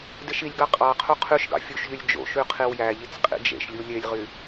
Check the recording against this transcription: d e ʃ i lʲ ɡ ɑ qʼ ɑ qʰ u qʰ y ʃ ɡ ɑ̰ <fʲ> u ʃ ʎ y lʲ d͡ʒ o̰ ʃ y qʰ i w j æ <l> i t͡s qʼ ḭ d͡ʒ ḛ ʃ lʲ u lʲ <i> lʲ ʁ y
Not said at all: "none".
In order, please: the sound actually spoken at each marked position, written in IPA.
fʲ, ʎ, e

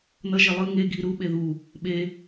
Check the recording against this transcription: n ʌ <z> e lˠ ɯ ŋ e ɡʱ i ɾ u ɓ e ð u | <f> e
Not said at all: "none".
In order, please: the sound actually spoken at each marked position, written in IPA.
ʒ, ɓ

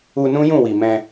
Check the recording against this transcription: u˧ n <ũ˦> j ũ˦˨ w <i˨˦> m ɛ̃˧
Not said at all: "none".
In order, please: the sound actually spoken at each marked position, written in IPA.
ũ˦, i˨

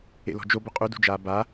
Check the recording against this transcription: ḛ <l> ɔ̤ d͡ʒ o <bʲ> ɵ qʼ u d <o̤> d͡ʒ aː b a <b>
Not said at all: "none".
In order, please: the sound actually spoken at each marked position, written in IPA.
l, b, ṳ, none

